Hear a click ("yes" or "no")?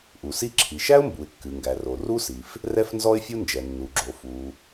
yes